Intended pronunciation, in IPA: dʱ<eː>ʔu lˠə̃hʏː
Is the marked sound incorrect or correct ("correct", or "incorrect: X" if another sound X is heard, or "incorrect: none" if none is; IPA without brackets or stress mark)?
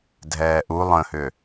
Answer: incorrect: ɛː